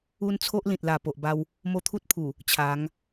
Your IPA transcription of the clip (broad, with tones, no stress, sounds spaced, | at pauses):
u˦ n t͡sʰ o˦ ʔ l ĩ˨ t̚ l a˨˩ p o˨ ʔ b a˧ w | m o˥˧ t̪ʰ u˦ t̚ pʰ u˨˩ | t͡ɕʰ a˨˦ ŋ